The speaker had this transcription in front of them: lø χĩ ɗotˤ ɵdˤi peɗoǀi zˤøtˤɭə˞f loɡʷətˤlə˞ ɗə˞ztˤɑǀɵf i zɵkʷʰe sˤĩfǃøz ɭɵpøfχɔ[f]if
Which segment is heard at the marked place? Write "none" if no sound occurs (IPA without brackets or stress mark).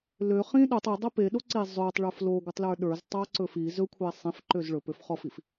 f